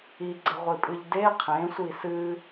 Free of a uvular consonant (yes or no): no